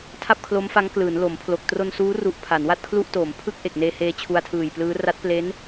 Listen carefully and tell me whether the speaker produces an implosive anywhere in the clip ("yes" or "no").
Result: no